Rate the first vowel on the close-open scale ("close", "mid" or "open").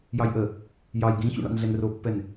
open